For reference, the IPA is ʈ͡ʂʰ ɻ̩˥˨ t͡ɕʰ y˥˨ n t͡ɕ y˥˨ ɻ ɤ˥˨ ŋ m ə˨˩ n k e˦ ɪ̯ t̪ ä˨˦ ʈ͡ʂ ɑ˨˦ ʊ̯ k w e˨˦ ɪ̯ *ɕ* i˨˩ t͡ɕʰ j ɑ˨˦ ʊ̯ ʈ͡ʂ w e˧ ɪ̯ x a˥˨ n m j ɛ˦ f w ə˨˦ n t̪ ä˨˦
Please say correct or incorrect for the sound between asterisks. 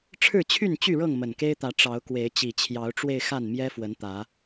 incorrect: t͡ɕ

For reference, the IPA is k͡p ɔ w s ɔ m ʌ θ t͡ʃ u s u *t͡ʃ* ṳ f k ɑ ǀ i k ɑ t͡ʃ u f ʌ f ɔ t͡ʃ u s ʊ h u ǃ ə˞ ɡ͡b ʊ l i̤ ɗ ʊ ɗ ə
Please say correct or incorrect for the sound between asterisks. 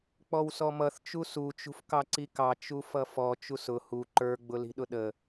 correct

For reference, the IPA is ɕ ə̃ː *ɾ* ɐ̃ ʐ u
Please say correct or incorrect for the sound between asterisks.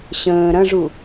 correct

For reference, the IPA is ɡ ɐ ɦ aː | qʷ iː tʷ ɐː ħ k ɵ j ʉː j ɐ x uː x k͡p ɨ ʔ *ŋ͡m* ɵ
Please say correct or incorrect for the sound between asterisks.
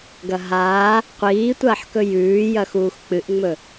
correct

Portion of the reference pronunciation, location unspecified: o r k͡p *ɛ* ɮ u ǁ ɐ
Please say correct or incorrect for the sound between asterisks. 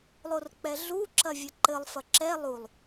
correct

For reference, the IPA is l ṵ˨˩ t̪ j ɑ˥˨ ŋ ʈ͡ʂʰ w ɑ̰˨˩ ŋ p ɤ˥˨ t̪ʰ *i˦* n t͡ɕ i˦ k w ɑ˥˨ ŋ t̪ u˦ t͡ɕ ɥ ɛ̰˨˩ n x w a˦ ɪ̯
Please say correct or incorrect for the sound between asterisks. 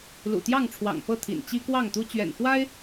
incorrect: ḭ˨˩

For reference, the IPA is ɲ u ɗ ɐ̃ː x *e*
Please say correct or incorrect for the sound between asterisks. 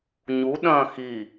incorrect: i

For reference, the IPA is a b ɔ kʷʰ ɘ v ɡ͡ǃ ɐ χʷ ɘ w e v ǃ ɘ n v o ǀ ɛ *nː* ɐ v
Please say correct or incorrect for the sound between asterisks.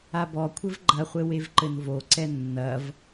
correct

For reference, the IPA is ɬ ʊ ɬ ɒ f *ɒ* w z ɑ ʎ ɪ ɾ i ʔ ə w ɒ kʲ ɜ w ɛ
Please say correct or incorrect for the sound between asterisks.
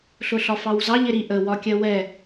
incorrect: ɑ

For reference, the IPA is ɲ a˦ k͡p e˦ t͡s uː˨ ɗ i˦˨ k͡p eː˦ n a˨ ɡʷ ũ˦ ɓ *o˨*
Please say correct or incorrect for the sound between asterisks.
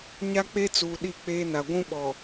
incorrect: ɔ˨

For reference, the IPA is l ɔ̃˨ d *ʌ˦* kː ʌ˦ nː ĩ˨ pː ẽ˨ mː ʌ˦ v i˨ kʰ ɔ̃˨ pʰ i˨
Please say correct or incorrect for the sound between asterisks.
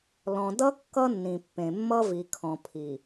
correct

